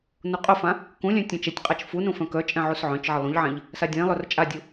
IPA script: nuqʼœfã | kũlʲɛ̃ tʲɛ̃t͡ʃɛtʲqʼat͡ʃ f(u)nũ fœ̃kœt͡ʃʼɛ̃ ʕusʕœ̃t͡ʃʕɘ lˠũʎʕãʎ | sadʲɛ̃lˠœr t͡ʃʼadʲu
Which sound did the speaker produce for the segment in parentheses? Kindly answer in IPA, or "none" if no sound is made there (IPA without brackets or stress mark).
u